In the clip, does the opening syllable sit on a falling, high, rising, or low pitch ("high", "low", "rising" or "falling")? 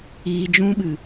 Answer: low